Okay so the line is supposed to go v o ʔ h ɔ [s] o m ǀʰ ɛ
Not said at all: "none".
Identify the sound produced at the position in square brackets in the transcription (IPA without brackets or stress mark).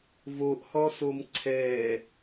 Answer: s